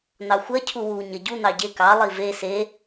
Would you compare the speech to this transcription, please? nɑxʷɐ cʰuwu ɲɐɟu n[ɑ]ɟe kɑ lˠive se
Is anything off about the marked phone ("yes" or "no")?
no